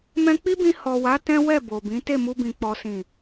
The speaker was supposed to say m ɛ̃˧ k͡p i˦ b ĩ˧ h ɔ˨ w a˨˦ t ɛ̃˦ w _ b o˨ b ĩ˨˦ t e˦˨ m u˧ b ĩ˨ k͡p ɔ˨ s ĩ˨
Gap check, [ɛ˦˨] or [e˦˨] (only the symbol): ɛ˦˨